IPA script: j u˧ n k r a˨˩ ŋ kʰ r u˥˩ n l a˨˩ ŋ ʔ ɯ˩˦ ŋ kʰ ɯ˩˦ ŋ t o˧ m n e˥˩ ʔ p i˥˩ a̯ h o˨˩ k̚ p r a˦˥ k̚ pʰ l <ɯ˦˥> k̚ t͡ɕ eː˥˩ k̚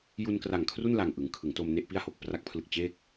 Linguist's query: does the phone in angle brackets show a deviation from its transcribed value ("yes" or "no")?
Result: yes